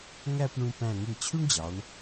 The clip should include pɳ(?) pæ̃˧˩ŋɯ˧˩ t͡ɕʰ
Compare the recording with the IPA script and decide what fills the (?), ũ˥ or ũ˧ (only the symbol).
ũ˧